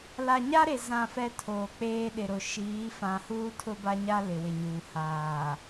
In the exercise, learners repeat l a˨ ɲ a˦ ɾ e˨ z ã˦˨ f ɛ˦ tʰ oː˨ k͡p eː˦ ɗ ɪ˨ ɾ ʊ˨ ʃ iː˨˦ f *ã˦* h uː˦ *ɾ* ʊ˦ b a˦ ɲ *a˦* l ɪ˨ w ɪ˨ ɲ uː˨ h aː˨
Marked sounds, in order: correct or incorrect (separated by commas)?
incorrect, incorrect, correct